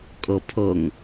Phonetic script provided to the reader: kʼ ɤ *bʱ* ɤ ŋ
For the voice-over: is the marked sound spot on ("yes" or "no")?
no